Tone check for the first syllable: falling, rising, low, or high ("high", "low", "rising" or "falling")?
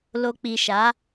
low